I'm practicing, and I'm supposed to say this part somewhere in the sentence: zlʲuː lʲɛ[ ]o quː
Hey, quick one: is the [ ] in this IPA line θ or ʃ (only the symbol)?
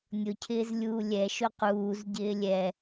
ʃ